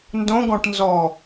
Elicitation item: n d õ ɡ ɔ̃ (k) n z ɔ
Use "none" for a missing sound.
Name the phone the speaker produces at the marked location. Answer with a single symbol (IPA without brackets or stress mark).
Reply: ʈ